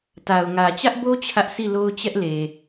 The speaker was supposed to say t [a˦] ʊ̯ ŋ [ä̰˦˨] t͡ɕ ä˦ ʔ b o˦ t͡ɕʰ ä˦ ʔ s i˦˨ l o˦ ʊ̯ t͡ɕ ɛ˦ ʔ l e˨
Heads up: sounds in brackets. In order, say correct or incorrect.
incorrect: a˨, incorrect: ä˨

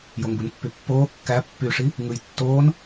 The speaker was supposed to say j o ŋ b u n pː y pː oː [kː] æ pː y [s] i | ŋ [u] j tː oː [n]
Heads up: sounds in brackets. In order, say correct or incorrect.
correct, incorrect: ʂ, incorrect: ɯ, correct

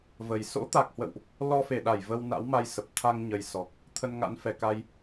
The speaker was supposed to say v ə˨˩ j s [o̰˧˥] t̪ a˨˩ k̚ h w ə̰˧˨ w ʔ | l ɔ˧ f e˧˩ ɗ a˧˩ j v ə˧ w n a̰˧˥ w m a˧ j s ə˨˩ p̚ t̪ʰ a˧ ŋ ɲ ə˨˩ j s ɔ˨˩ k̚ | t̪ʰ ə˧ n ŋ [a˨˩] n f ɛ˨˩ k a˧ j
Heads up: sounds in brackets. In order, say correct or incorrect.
correct, incorrect: a̰˧˥

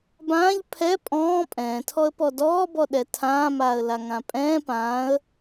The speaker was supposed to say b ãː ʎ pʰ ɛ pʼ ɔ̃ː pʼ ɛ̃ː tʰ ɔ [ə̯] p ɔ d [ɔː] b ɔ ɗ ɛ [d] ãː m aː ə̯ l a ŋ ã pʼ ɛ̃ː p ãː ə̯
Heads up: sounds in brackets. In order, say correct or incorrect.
correct, correct, incorrect: tʰ

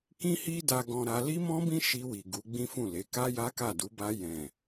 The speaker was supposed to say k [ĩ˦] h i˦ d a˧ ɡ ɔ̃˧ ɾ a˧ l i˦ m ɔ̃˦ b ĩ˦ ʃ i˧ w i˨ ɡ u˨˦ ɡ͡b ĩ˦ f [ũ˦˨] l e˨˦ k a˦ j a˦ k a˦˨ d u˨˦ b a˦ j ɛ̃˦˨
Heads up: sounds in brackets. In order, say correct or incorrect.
correct, correct

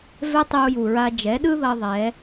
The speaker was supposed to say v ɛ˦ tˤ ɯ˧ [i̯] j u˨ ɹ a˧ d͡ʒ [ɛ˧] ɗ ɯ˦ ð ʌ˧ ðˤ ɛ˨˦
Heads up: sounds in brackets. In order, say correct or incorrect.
incorrect: u̯, incorrect: ɛ˨˦

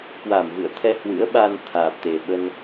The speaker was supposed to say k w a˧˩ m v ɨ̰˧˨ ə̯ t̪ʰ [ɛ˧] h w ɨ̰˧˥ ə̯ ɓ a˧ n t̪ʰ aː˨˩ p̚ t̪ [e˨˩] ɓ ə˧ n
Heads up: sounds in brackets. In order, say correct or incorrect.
correct, correct

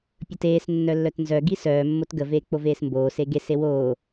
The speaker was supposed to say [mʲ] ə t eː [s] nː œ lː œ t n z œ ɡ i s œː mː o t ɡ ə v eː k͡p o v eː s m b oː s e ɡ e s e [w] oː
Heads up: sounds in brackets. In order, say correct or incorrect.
incorrect: pʲ, correct, correct

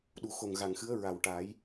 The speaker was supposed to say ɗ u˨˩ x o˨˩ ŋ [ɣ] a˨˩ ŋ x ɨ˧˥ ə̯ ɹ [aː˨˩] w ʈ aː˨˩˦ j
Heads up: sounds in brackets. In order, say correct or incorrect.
correct, incorrect: a˨˩

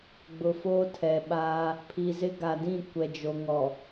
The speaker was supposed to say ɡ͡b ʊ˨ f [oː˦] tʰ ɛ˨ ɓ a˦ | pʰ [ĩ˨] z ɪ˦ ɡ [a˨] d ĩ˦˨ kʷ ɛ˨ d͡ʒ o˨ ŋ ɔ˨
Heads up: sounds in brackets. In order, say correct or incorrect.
correct, incorrect: i˨, correct

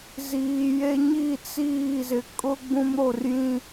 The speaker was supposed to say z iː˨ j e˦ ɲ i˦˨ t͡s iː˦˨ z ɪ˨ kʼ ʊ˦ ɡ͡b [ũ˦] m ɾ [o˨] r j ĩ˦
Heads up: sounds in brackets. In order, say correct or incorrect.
correct, correct

